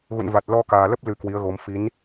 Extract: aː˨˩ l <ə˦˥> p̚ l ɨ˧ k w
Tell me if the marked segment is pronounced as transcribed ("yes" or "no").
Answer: yes